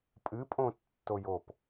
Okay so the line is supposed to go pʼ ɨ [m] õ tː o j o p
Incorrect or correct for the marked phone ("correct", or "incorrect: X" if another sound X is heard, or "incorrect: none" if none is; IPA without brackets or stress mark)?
incorrect: pʼ